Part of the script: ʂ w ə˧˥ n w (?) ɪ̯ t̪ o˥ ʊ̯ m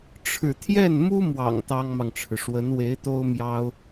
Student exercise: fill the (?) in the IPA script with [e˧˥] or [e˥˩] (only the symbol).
e˧˥